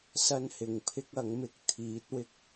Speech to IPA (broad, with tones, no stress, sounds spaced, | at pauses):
s ɐ˥ n h ɪ˨ ŋ pʰ ɪ˥ k̚ ɐ˨˥ ŋ m ɪ˨ k̚ t̪ʰ iː˨˥ t̚ w ɪ˧ k̚